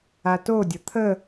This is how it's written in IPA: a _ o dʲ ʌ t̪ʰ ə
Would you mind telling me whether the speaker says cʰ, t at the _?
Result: t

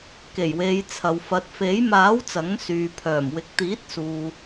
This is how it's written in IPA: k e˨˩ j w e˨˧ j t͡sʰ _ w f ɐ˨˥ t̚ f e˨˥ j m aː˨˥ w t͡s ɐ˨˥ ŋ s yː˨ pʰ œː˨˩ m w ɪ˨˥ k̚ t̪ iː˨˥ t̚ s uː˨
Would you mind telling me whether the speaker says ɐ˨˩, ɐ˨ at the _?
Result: ɐ˨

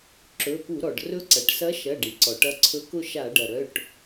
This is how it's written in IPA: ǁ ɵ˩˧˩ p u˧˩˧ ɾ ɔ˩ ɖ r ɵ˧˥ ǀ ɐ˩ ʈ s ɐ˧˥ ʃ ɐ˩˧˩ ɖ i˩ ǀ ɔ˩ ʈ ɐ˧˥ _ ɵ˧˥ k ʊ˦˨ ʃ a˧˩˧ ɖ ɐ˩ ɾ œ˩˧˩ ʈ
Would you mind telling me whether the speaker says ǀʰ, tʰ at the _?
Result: ǀʰ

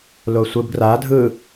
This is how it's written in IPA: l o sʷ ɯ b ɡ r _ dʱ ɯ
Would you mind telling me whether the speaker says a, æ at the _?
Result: a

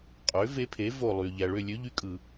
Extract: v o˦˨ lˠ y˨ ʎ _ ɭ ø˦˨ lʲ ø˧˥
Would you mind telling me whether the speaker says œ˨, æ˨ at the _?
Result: æ˨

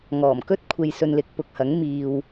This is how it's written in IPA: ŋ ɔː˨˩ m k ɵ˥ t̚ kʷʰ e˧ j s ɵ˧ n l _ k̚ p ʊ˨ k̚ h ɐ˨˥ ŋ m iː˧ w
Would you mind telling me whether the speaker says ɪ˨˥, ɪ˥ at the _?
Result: ɪ˨˥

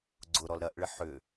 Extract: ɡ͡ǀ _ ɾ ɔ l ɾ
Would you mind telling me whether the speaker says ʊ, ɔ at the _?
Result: ʊ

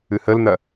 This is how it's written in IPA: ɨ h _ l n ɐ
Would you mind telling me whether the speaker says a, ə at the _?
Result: ə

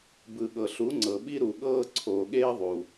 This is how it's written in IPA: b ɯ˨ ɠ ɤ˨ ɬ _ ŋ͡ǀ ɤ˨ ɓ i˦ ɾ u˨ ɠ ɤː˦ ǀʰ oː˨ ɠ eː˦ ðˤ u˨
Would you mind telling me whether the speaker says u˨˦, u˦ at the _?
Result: u˨˦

